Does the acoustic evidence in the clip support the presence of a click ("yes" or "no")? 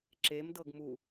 yes